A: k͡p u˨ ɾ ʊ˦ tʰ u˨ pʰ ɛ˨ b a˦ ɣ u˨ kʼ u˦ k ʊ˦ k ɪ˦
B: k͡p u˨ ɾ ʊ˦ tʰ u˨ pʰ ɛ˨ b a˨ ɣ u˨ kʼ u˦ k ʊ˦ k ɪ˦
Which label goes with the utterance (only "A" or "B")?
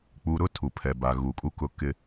B